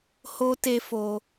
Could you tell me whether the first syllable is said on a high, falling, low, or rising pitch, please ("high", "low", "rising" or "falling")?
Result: high